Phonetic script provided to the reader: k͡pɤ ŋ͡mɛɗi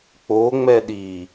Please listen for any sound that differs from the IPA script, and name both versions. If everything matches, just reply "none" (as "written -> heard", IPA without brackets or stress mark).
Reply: ɤ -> o